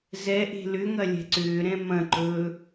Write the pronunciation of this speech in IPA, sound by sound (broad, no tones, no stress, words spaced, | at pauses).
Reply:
zɛʔe̤ lʏŋɐ lʲɛ̤ǀʏːɾɛ̃ mɐ̃ǃɵː